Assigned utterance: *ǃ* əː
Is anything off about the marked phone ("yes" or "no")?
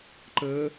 no